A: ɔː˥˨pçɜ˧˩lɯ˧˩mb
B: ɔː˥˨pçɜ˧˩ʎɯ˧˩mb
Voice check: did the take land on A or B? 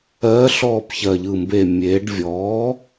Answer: B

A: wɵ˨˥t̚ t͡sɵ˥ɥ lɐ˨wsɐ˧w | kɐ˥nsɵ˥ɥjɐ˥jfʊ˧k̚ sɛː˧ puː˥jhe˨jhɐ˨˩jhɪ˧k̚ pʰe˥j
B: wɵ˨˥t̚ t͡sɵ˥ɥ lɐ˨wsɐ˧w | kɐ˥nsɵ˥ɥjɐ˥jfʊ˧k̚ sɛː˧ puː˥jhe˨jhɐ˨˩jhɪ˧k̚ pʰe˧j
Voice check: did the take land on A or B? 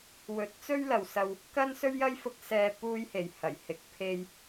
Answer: B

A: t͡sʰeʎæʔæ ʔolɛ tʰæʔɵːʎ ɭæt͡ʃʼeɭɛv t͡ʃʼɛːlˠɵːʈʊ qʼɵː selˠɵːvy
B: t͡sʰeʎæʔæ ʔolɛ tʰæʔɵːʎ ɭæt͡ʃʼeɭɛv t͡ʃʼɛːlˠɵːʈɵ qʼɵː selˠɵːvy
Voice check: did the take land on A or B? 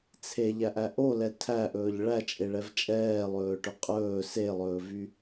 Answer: B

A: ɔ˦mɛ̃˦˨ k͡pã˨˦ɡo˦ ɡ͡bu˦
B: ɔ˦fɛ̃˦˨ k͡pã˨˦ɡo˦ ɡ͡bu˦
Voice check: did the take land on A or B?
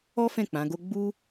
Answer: B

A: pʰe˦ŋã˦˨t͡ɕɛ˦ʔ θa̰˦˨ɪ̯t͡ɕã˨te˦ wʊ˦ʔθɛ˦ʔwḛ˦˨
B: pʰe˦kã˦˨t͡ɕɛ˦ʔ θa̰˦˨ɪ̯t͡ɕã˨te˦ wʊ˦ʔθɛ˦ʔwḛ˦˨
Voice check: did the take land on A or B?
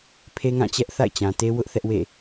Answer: A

